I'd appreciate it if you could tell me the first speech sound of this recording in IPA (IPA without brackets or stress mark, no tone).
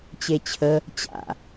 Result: t͡ɕ